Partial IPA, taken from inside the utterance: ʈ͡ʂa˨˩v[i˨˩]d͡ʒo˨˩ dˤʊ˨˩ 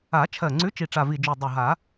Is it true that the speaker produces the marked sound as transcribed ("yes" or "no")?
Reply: yes